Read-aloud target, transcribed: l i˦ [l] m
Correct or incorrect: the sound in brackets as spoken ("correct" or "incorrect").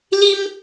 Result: incorrect